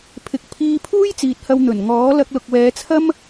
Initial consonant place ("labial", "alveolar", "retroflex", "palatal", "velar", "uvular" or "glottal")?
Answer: labial